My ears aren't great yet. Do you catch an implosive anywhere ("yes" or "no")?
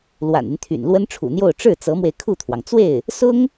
no